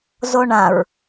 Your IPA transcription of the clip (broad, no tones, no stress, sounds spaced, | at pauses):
z o ɳ ã ɹ